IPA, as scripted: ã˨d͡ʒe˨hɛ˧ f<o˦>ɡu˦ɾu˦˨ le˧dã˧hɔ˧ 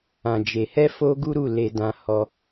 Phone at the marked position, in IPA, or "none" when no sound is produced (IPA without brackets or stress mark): o˦